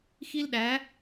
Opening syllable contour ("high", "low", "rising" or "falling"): high